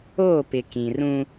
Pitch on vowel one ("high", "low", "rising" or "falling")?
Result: falling